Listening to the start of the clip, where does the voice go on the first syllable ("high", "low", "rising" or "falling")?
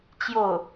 falling